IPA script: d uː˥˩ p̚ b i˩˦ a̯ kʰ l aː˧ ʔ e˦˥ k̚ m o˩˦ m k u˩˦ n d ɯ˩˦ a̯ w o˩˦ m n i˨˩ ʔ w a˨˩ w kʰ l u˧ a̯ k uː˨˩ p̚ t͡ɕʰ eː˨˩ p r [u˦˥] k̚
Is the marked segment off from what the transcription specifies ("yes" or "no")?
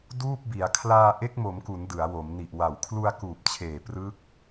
yes